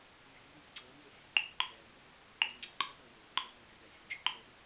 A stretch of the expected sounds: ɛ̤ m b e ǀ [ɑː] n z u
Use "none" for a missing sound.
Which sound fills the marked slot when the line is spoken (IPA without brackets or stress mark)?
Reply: ʌː